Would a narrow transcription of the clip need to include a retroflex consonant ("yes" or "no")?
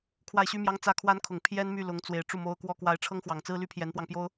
yes